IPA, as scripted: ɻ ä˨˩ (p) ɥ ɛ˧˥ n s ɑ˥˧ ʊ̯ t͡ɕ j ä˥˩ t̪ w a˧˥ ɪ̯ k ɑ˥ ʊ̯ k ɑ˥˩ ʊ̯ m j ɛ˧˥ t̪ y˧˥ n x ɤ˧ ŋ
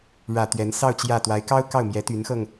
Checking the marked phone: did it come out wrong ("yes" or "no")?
yes